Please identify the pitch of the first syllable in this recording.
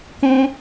high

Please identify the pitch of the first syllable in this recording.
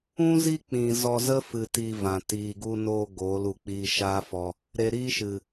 high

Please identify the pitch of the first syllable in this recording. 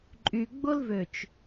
low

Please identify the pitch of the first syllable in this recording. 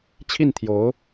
falling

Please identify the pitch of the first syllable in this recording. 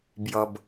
low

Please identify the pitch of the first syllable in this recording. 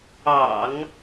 low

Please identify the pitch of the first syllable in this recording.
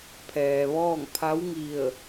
low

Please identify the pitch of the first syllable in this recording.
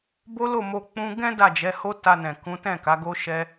high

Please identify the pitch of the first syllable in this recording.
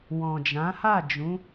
low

